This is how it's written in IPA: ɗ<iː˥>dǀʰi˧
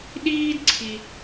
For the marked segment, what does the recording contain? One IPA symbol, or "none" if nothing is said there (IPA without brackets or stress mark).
iː˥